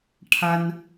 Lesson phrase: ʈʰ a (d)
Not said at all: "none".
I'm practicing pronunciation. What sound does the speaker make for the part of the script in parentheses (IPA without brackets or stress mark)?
n